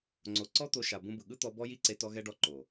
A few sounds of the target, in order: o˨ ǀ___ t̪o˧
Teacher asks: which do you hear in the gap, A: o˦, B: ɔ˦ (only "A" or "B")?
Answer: B